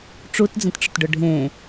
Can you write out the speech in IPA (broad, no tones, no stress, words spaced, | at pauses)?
ʈ͡ʂutd͡zə̃tʈ͡ʂʊtɖʊ ɖʱẽ